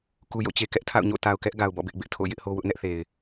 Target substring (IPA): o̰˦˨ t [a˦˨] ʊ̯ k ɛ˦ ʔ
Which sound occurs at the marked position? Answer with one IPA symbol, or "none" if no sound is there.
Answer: a˨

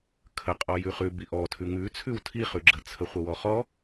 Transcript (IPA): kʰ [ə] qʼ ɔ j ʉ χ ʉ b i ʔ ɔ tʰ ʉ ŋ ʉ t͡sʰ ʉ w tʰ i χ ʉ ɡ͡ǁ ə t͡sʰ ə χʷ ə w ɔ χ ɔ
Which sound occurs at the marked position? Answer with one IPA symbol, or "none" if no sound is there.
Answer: ə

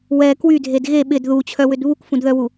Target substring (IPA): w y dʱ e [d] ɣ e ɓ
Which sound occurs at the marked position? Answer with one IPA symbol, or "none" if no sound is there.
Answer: d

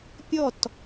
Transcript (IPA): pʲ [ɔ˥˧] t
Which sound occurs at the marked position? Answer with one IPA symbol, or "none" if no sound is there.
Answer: ɔ˥˧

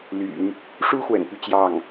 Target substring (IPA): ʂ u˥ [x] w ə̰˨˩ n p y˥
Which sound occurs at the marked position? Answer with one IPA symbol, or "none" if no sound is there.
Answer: x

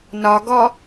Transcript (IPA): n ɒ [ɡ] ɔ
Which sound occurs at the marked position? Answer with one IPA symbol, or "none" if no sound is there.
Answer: ɡ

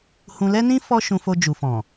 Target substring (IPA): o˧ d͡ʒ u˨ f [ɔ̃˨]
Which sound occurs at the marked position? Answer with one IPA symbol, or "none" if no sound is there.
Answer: ɔ̃˨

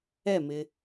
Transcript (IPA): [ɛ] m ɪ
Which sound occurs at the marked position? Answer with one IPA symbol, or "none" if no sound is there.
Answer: ɛ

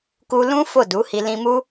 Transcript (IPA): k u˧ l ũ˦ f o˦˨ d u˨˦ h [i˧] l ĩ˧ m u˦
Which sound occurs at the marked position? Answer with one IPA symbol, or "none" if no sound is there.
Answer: i˧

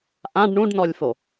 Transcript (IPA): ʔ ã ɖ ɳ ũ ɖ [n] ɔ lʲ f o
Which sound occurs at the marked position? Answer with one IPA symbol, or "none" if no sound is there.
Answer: n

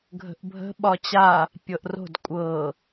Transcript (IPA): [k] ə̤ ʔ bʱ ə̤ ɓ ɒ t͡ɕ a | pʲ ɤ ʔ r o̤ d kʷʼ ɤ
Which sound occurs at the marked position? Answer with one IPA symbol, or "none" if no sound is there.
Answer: ɡʱ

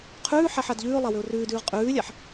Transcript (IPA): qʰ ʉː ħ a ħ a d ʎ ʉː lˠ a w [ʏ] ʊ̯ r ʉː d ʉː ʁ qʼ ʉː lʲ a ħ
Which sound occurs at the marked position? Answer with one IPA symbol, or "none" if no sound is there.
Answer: ʏ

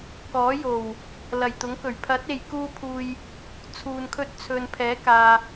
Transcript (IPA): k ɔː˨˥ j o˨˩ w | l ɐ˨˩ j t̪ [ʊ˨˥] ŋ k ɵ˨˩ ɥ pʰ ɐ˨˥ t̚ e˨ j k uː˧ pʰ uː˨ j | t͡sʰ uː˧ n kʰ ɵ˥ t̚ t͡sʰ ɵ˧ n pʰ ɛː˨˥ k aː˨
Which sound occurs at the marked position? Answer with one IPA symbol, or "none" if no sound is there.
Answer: ʊ˨˥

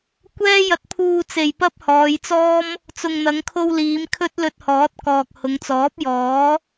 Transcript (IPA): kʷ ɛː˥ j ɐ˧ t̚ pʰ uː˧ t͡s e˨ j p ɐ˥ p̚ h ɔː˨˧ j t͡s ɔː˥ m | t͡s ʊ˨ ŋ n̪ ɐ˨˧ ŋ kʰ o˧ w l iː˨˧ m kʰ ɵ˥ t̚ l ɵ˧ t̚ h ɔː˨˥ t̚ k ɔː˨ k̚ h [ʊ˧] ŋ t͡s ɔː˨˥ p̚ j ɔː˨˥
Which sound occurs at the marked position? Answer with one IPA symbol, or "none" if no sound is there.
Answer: ʊ˨˧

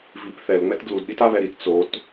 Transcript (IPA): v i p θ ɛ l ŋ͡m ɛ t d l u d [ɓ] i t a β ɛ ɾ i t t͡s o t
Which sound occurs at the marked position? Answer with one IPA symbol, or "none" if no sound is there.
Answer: ɗ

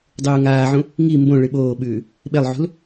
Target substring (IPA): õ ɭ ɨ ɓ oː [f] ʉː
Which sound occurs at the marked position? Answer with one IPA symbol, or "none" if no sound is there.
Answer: ɓ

